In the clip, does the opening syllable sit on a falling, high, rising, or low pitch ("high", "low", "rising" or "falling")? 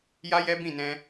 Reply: high